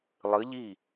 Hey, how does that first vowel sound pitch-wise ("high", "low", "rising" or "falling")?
rising